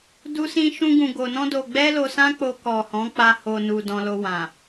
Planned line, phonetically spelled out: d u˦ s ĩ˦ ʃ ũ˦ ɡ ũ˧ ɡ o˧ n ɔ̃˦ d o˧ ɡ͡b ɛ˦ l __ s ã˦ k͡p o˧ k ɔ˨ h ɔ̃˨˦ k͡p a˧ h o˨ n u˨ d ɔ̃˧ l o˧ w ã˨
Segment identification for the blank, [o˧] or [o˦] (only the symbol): o˧